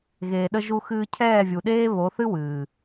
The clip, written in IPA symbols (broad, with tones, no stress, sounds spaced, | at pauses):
ɣ eː˨ ɗ ə˧ ʒ u˧ x ɨː˧ cʰ ɛː˦˨ vʲ u˨ ɗ eː˦ β o˨˦ θ ɨ˦ w ɨː˨